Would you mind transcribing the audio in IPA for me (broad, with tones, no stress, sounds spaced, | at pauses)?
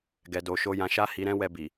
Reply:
ɡ ɛ˧ d o˧ ʃ o˦ j ã˧ ʃ a˦ h i˧ ɾ ɛ̃˦ w ɛ˧ b i˨